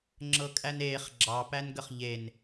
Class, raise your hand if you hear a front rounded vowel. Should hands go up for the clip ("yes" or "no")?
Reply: no